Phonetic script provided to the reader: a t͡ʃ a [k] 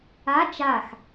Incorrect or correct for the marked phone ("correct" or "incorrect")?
incorrect